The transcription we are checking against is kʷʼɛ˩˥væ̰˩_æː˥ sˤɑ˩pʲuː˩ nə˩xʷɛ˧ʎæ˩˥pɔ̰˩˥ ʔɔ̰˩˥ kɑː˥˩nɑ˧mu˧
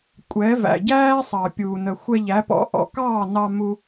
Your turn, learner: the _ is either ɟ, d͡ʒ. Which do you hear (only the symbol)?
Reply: ɟ